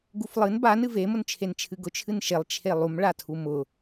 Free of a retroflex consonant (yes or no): no